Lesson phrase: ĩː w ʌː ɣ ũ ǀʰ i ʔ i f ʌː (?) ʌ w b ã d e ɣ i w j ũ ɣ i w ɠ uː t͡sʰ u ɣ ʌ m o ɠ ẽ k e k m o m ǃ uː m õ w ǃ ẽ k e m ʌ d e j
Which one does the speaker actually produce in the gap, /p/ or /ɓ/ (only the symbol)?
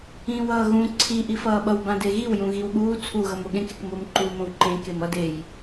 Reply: ɓ